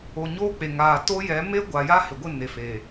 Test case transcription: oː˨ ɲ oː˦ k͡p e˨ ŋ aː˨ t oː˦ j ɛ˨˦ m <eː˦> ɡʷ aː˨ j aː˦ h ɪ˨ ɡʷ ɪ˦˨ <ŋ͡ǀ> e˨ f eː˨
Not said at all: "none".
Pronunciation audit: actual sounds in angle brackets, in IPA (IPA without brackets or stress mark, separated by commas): eː˦, n